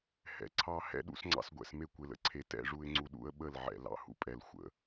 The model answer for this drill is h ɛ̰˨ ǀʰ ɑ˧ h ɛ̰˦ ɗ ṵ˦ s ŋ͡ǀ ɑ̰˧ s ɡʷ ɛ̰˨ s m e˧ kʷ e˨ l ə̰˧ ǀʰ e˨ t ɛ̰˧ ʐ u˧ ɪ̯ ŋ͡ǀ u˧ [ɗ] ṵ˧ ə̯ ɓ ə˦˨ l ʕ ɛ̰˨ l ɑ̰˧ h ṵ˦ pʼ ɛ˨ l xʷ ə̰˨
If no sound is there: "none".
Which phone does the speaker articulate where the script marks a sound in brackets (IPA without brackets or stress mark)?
ɗ